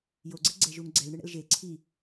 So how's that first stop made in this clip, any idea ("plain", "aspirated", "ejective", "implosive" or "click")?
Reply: click